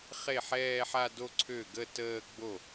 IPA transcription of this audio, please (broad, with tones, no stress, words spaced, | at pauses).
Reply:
χe˥˩ħɛː˥˧ħa˥˧do˥˧ ǀʰø˥˩ɡə˥˧təː˥˧ ɡ͡bo˥˩